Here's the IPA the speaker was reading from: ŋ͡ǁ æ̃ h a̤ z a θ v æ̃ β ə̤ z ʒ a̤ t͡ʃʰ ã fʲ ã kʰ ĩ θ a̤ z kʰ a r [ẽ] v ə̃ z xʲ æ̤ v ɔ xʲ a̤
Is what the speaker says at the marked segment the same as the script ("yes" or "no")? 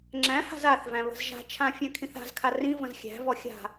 no